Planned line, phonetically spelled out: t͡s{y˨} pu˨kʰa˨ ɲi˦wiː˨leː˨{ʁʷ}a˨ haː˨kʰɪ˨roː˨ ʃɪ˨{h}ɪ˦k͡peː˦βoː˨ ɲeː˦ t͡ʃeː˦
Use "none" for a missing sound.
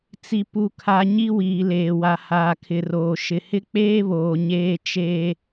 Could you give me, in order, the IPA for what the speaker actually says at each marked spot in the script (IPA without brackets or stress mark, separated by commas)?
i˨, w, h